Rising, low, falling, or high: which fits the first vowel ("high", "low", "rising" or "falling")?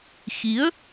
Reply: rising